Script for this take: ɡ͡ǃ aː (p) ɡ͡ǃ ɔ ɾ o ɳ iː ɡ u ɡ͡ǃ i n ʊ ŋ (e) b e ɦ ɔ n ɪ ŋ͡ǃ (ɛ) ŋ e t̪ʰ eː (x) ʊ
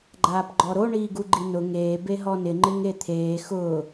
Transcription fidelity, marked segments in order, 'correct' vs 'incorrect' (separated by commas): correct, incorrect, incorrect, correct